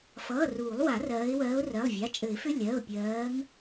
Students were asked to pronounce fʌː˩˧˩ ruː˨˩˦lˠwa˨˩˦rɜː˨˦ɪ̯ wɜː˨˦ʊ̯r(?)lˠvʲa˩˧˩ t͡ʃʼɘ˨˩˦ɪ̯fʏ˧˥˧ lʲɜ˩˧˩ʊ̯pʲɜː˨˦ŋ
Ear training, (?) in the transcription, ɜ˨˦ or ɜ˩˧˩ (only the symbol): ɜ˩˧˩